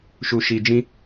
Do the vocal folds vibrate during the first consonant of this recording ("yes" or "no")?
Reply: no